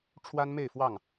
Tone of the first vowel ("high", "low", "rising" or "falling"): high